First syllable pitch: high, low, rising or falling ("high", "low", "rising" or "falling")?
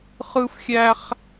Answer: high